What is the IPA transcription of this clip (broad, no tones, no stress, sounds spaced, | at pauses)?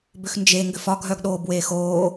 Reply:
b ʏ x n d͡ʒ e ŋ ɡ ʏ f ɒ ɡʱ œ ɡ ɗ oː b w eː x oː